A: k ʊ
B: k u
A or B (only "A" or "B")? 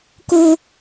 A